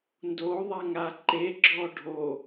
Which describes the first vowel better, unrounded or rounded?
rounded